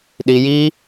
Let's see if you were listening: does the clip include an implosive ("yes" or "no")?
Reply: yes